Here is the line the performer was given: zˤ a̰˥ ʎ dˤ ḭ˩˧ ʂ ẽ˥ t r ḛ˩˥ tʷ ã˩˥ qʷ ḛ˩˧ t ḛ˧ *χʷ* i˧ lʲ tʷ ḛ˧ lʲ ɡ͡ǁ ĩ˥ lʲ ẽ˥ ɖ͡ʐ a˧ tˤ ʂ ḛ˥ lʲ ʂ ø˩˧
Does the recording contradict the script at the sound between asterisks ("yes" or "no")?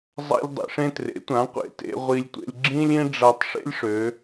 yes